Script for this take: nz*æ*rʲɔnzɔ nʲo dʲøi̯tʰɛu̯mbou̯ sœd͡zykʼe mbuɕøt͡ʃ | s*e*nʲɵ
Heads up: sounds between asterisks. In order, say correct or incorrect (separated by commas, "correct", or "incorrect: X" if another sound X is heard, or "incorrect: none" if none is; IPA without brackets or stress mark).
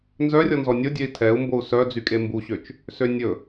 incorrect: œ, incorrect: ø